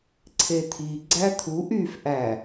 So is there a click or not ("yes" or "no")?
yes